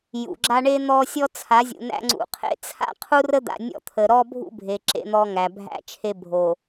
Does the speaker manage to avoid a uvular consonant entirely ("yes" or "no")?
no